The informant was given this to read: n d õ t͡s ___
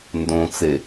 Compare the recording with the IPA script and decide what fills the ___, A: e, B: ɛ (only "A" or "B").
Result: A